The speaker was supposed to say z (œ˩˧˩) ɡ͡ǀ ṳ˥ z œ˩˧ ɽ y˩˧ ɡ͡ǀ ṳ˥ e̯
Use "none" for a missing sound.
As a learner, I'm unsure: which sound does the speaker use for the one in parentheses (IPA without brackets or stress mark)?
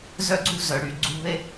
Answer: œ˥